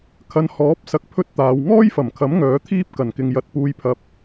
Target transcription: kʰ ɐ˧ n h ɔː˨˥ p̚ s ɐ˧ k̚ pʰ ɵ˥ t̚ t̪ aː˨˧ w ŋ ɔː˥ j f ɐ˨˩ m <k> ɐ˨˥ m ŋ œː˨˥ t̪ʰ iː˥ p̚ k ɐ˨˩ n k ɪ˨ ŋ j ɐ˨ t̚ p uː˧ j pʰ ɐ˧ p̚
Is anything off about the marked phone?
yes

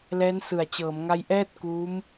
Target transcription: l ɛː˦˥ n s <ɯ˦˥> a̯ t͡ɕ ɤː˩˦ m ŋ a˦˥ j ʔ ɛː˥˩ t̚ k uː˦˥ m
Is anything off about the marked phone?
yes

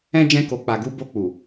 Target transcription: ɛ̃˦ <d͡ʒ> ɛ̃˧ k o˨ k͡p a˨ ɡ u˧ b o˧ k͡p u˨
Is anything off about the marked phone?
no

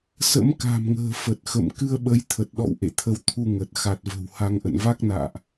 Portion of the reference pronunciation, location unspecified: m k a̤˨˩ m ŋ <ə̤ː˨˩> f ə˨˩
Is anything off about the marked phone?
no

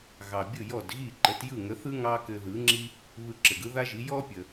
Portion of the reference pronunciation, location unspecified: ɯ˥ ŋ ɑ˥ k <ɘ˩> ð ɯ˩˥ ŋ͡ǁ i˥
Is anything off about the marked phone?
yes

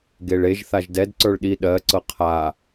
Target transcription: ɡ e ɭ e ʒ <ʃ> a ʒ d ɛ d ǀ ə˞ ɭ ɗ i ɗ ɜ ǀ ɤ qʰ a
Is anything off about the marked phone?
yes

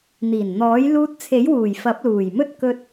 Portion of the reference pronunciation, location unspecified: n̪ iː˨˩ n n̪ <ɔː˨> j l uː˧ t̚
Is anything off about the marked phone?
yes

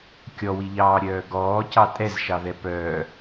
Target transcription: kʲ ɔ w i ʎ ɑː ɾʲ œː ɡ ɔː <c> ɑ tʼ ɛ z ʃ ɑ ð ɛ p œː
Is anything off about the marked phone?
no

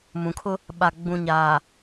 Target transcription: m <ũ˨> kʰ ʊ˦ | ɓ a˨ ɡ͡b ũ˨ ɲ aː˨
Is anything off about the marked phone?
no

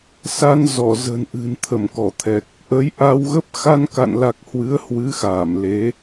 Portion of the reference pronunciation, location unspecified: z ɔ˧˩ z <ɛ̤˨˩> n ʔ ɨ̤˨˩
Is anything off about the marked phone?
yes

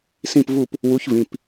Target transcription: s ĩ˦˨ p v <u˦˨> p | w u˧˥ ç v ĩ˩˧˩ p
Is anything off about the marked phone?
no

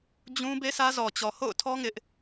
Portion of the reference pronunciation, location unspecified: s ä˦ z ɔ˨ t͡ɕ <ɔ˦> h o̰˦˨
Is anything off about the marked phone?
yes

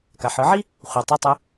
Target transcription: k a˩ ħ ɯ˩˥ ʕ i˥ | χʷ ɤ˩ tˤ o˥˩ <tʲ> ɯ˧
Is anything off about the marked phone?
yes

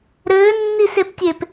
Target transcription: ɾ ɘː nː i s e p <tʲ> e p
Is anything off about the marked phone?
no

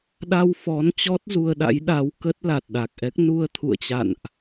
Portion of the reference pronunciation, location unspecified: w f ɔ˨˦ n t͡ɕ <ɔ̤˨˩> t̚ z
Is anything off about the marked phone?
yes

